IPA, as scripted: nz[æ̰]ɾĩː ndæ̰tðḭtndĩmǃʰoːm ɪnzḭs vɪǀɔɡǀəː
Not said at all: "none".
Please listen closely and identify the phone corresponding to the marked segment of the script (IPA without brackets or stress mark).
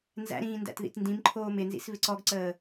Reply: æ̰